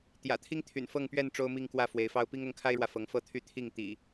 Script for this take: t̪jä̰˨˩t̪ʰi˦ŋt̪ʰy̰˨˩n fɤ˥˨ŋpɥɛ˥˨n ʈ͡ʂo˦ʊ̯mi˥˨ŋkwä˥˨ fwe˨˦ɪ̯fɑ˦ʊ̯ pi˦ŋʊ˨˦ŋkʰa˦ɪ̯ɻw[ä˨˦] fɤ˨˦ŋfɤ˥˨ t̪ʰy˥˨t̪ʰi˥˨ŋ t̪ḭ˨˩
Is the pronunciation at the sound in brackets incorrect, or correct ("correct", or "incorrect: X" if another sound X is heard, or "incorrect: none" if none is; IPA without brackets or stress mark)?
incorrect: ä˨